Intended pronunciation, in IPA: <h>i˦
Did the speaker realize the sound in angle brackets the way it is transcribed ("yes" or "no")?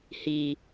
yes